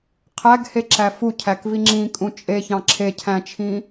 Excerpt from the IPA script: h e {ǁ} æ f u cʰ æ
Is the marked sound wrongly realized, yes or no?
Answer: no